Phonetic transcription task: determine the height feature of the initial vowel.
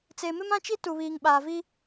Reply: mid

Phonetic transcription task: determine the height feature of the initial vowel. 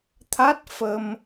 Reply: low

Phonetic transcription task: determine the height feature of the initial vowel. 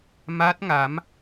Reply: low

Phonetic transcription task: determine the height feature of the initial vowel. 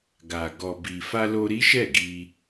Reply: low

